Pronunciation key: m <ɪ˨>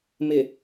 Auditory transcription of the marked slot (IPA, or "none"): ɪ˨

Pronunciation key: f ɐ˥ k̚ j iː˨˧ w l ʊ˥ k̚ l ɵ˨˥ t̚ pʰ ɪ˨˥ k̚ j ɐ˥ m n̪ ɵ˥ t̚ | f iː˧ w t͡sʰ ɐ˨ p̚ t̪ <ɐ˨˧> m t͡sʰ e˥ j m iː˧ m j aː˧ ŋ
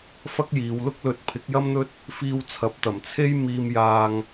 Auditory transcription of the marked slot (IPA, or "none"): ɐ˨˩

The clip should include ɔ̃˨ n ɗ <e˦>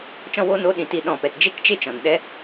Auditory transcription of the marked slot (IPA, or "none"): ɛ˦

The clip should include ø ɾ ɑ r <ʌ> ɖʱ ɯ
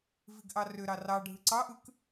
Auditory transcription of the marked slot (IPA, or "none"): ɑ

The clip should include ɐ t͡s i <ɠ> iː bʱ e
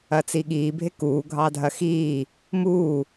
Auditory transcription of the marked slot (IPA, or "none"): ɠ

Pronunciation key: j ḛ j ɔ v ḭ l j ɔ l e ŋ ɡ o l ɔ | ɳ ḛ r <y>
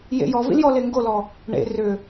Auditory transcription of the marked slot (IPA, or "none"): ʏ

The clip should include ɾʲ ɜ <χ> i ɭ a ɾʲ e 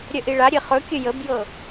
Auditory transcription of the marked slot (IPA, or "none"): ʔ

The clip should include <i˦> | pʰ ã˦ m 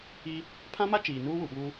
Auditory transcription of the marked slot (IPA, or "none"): i˦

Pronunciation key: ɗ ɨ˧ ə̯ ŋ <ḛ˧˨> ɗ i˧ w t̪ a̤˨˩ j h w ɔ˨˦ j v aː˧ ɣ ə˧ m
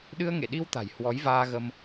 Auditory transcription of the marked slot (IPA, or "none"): ḛ˧˨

